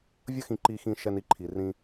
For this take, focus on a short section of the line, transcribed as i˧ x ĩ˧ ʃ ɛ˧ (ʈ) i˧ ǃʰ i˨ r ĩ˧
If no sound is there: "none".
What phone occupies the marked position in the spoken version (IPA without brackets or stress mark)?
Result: n